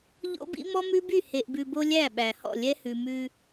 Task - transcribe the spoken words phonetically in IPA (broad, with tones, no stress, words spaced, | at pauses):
ʎo̰˦bḭ˦ mɔ˦mʉ˦by˦˨ he˨ʔbʉ˨bo˦ lʲæ˦˨ɓæ˨hɔ̰˦˨ lʲɛ˦hʉ˨ mʉ˦